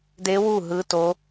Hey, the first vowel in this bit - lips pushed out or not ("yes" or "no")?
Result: no